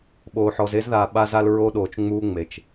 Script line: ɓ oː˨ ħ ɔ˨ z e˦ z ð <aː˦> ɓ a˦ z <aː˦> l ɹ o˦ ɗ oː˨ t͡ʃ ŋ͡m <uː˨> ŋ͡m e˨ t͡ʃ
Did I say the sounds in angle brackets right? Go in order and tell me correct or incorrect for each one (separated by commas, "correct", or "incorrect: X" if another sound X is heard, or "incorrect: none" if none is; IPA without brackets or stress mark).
incorrect: aː˨, incorrect: a˦, incorrect: uː˦